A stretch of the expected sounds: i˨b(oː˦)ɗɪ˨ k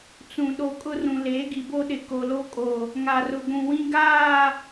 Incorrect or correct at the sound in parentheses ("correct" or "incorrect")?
incorrect